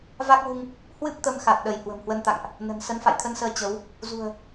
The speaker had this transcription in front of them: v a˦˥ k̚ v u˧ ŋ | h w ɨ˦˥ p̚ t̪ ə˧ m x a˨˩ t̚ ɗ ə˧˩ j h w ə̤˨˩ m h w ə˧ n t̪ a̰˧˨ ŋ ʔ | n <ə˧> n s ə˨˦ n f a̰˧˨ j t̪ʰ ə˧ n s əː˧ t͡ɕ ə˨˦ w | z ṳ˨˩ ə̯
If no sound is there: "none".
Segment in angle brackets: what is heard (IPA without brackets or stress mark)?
ə̤˨˩